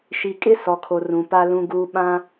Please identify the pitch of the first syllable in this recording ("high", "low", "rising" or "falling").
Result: low